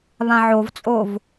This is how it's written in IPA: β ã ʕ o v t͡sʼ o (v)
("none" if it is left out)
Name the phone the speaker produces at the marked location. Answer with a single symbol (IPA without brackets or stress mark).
v